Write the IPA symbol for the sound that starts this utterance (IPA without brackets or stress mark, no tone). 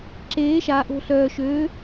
ǁ